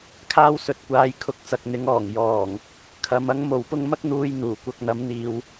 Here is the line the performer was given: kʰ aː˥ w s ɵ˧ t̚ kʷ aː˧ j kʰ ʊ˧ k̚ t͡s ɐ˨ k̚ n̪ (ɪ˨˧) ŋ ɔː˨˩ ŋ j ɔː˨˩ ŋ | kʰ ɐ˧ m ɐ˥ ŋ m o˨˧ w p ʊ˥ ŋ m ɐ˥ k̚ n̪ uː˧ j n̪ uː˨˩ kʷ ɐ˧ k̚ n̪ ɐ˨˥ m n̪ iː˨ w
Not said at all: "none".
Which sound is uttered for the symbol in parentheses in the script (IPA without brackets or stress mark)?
ɪ˨˥